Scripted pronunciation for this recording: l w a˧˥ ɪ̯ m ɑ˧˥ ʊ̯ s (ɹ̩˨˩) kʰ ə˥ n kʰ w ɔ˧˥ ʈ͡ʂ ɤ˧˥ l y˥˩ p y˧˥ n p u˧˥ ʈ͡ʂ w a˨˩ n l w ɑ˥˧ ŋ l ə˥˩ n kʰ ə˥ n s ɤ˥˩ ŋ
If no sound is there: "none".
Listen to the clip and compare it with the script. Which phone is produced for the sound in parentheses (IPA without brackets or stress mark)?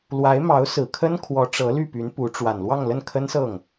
ɹ̩˨˩